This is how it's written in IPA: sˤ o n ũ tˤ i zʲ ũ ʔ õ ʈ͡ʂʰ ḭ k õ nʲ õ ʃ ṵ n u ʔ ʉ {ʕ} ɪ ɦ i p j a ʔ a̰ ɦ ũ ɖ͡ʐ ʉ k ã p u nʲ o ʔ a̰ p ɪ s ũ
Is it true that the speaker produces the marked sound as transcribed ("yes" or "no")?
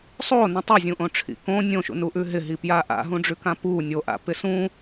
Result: no